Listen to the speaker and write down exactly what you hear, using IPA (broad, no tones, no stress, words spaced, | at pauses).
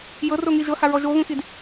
jɤro ŋiʒɤha ɹɔʒoɣũxid